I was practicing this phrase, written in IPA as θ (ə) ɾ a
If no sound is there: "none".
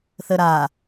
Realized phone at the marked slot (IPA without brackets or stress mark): ə